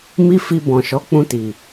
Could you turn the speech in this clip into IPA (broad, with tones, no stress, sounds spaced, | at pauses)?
m i˦ f i˧ b ɔ̃˨ ʃ ɔ˨˦ k͡p ũ˧ t i˨